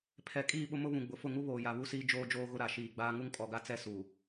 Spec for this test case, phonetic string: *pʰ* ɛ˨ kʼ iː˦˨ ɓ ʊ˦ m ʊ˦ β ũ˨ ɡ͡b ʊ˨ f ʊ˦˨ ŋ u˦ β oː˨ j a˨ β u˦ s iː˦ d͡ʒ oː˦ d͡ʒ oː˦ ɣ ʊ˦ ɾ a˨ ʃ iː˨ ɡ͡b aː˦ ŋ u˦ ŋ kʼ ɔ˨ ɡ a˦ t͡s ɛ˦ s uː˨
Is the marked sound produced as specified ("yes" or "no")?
yes